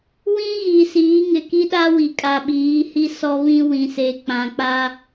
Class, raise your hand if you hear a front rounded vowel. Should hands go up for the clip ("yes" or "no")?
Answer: no